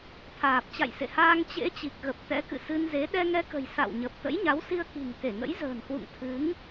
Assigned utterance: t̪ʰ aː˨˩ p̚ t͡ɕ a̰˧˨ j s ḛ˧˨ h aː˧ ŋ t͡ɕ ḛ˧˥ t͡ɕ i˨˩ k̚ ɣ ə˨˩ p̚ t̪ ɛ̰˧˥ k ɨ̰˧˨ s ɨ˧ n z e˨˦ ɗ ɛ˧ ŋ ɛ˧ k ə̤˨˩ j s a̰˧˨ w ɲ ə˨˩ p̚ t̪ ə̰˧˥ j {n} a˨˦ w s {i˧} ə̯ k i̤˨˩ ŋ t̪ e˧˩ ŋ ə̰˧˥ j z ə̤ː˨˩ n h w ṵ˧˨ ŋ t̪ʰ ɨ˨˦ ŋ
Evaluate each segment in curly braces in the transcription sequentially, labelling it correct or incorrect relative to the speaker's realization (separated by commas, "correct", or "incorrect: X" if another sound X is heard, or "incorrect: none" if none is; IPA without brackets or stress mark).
incorrect: ɲ, correct